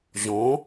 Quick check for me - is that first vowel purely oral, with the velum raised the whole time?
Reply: no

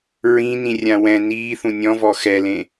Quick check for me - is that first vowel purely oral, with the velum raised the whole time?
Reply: no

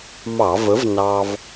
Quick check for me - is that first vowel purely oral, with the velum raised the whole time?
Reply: yes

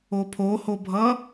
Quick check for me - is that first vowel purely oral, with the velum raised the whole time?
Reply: yes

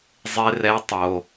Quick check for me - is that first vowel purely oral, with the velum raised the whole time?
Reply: yes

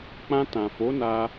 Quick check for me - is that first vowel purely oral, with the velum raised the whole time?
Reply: no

